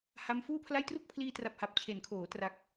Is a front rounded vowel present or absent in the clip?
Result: absent